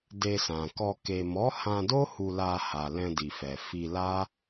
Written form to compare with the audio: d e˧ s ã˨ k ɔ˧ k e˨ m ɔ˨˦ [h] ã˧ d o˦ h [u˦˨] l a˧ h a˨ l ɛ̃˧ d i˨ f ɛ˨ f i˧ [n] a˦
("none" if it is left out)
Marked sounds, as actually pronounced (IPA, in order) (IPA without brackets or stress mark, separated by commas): h, u˧, l